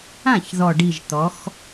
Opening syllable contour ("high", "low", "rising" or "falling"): falling